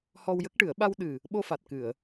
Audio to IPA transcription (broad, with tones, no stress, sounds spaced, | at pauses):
h ɔ˧ w j ə˦˥ k̚ ʈ ɨ˨˩˦ ə̯ ɓ a˧ w ɗ ɨ˨˩ | ɓ o˧ f a˨˩ t̚ k ɨ˨˩˨ ə̯